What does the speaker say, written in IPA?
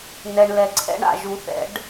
n ɛ˨ ɳ l ɛ˨ ǀʰ ɛ̰˧˥˧ ɳ a̰˦˨ ʒ u˨˩˦ θ ɛ̰˨˩˦ ɖ

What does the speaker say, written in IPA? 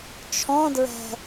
t͡ʃʰ ɔ̃ d ɹ ɛ̤

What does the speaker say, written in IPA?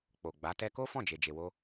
k͡p o˨ ɡ͡b a˨˦ t ɛ˧ k o˦ f ɔ̃˦˨ d͡ʒ e˨ d͡ʒ e˨ w o˧

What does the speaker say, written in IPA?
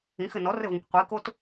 ĩ x ɘ n ɔ r ɘ v õ kʷ qʷ i k o t

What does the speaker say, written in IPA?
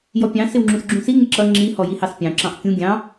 j ɔ pʲ ɑ̃ s ɪ w ŋ͡ǁ ũ s ɡ͡ǁ ũ s i ŋ ɪ ǁ ʌ ŋ͡ǁ i h ɔ j i h ɑ s pʲ ɑ̃ ǁ ɑ̃ ʔ kʲ ũ ɡʲ ɑ̃

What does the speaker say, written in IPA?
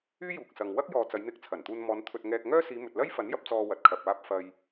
yː˥ j uː˨ k̚ s ɐ˨ ŋ w ɐ˥ k̚ j ɔː˨ t͡s ɐ˨˧ j n̪ ɪ˧ k̚ t͡sʰ ɐ˨˩ n t̪ uː˧ n m ɔː˨˧ n t̪ʰ ɵ˧ t̚ ŋ ɛː˧ k̚ ŋ œː˥ s iː˨˧ m ɵ˨ t̚ l ɐ˥ j f ɐ˨˥ n j ɐ˧ p̚ t͡s ɔː˧ w ɐ˨ t̚ kʰ ɐ˨ p̚ aː˧ p̚ f ɐ˨ j

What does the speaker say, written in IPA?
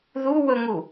ð u w ɵ ŋ u

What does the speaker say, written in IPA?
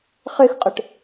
χ e x qʼ ə ʈ

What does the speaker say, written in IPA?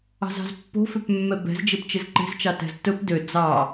ɑ̤ z ɑ̤ z pː o̤ f ø p mː ɛ b ɛ̤ z d͡ʒ e p t͡ʃ e z ǃ e̤ z t͡ʃ ɑ t ɛ̤ z t ɵ p d ø d͡z ɑ

